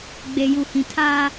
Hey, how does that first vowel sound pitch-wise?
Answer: low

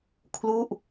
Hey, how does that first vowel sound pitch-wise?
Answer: falling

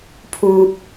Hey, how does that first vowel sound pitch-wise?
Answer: low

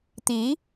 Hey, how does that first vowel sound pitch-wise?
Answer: rising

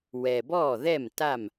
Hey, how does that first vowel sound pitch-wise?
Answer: low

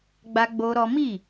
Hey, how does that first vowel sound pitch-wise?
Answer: high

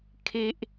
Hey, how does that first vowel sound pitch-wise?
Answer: high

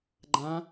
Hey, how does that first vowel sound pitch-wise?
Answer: rising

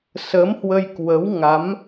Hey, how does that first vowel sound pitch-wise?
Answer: rising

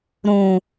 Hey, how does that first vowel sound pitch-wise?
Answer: low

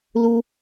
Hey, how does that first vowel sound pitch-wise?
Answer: high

